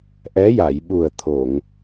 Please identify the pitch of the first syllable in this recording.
rising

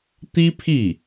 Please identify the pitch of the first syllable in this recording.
high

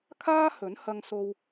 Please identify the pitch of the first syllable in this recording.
high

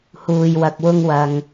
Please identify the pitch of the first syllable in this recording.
low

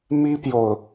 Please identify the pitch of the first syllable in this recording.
high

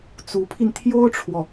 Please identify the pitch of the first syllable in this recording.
rising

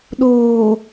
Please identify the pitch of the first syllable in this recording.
low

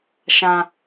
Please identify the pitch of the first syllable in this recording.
low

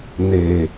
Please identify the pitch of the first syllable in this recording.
low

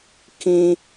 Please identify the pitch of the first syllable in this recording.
high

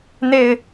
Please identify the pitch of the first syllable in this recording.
low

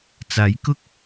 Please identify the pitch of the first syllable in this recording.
rising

